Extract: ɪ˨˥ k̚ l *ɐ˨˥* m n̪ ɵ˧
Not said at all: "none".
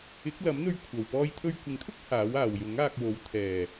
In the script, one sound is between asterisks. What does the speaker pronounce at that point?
ɐ˨˥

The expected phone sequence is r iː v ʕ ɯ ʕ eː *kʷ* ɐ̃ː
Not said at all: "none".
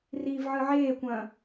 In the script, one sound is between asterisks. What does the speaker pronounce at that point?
kʷ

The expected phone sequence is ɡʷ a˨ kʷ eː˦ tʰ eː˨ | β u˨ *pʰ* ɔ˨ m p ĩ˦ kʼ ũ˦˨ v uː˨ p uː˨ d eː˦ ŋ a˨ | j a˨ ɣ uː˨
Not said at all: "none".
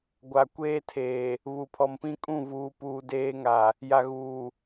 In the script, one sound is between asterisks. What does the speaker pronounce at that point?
pʰ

